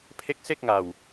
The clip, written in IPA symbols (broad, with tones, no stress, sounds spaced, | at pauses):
pʰ e˦˥ k̚ s e˥˩ k̚ ŋ a˨˩ w